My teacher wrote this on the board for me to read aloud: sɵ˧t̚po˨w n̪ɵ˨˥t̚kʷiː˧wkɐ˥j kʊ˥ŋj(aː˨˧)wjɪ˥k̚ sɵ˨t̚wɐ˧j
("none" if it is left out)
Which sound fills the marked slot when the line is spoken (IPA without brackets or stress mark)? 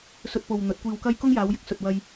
aː˨˧